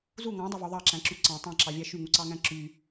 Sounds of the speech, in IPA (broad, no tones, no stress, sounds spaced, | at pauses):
z u ŋ ɑ̃ dˤ ɑ v o ðˤ ɑ ǁ æ̃ ǁ y ǀ ɑ̃ tˤ ɑ̃ ǁ ɑ vʲ æ ʃ y ŋ u ǀ ɑ ŋ æ̃ ǁ y